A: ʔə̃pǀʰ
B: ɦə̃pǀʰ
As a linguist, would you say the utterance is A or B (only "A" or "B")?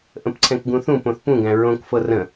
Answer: A